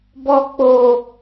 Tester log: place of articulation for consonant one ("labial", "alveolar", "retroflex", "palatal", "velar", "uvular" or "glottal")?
labial